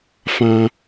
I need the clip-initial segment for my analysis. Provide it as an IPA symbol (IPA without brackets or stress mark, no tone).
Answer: f